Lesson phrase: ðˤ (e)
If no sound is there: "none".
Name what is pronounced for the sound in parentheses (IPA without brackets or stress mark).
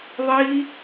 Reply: i